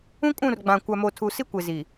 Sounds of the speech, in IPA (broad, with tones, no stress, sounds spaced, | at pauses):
ũ˦ kʼ ũ˦˨ r ɡ͡b ã˨ kʷ a˨ m o˨ tʰ u˨ s i˦ kʷ e˨ z i˨